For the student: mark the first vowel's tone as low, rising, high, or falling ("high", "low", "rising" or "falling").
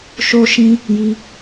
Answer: high